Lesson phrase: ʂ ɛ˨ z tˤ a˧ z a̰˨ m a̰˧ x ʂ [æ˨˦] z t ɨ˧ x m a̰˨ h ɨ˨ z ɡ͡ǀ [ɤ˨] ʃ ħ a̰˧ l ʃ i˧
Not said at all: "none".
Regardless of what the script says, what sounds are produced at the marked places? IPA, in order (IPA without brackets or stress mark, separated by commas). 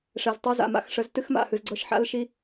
ə˨˦, ɤ˧